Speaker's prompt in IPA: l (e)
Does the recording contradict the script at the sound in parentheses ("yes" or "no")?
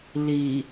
yes